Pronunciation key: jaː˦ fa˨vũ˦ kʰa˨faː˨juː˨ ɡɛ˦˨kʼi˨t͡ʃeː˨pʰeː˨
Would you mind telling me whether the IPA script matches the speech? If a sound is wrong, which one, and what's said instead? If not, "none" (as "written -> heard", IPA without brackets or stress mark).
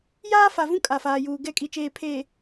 kʰ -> kʼ